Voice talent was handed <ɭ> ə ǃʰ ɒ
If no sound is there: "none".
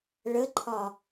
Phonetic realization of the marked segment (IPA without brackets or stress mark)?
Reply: ɭ